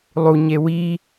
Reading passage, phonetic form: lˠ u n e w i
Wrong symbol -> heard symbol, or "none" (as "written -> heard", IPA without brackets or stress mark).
n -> ɲ